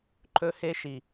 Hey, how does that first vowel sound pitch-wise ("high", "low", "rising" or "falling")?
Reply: high